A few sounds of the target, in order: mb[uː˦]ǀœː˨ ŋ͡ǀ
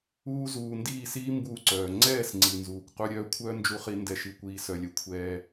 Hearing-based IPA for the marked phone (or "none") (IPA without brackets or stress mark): uː˧